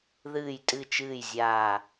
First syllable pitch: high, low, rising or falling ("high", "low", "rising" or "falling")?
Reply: low